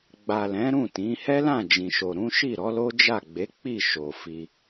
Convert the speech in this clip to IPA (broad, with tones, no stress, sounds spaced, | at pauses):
ɡ͡b a˨ l ɛ̃˨˦ ɾ ũ˦˨ t ĩ˨˦ h ɛ˦ l ã˦˨ d͡ʒ ĩ˨ ʃ o˨ ɾ ũ˨˦ ʃ i˦˨ ɾ ɔ˨˦ l o˦ d͡ʒ a˦˨ ɡ͡b e˨˦ k͡p i˦˨ ʃ o˨ f i˧